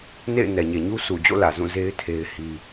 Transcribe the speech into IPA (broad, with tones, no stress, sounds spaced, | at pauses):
n ḛ˦˨ ɪ̯ n ɛ˨ ɲ e˨ ɲ u˦ sʰ u˨ d͡ʑ o̰˦˨ l ä˨ z ũ˦˨ z e˦ ɪ̯ tʰ e˦ ɪ̯ h i˦